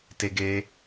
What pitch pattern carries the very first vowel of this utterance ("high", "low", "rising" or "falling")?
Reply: high